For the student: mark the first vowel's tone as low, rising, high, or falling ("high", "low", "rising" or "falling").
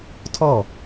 falling